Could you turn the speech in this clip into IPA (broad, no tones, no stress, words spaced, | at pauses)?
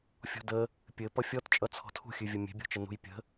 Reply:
fʲɔ̤də | pʲɘ pʌfʲɔt t͡ʃʼʌt͡sʰɔ̤tʰṳxʲʉ vʲəmʲe̤bʲɔ̤t͡ʃə nṳjpʲə̤